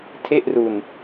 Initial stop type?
aspirated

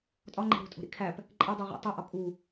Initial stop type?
ejective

